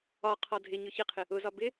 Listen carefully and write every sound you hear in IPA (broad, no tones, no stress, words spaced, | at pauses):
ɒ qʰɒdʱɪɲʊ çɪqʰɪ | ʊzɒ bɪ